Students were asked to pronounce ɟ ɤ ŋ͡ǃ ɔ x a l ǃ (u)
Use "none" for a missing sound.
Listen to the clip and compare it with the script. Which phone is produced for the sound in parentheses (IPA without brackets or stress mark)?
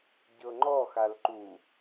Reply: u